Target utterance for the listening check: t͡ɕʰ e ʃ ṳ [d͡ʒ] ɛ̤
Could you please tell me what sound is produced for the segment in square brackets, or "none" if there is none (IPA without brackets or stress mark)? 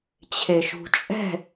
t͡ʃʼ